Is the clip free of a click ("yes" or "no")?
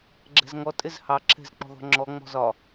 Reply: no